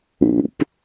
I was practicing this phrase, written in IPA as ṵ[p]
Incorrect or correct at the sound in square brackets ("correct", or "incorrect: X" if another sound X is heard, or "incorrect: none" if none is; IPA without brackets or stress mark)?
correct